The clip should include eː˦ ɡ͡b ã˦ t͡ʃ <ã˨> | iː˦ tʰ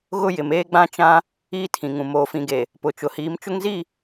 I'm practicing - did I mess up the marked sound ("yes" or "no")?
yes